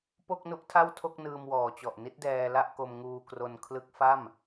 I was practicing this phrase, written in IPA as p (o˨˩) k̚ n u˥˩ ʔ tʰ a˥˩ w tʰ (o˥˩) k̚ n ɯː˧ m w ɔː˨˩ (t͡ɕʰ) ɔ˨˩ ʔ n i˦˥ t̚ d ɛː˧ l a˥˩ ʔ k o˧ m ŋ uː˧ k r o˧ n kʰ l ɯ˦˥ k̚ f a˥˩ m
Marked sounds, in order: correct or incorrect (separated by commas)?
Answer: incorrect, correct, incorrect